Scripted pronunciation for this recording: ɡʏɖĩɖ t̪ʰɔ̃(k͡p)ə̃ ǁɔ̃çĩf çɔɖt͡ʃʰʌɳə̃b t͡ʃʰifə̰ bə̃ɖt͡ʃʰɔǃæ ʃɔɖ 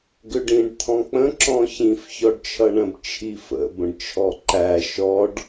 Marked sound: correct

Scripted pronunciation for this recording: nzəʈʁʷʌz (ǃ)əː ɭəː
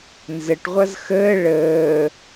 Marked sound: incorrect: x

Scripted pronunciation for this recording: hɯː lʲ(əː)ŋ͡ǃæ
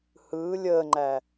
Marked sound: correct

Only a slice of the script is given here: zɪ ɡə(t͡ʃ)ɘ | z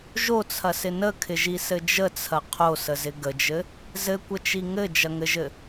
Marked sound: incorrect: d͡ʒ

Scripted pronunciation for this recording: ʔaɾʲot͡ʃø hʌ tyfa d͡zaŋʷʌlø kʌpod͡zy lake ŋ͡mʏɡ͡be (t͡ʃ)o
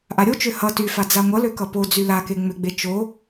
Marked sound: correct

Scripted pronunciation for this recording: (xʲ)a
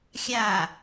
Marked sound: correct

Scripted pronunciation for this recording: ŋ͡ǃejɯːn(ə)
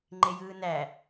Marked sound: incorrect: æ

